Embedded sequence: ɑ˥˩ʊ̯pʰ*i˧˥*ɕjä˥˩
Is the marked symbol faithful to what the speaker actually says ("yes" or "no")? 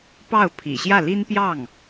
no